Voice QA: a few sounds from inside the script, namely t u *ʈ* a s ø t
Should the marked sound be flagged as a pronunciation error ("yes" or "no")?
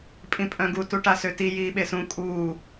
no